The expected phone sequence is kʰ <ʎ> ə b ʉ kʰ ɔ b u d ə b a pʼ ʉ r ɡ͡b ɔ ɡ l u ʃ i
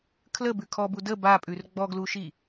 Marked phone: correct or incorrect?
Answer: incorrect: l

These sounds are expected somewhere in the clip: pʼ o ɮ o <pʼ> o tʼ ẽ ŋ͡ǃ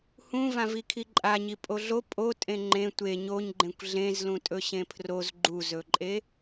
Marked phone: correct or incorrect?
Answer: correct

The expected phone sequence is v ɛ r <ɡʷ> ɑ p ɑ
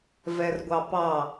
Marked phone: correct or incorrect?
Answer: correct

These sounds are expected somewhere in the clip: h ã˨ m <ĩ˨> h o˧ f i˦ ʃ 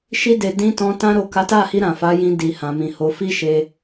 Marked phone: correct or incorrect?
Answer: correct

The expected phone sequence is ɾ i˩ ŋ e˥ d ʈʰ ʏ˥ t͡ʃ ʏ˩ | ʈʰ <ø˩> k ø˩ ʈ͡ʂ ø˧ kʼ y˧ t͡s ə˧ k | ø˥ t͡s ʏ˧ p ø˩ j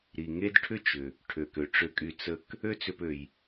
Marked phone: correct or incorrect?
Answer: correct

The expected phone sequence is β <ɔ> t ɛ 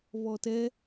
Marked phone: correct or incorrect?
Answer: correct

